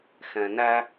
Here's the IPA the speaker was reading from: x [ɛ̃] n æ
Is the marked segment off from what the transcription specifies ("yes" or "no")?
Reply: no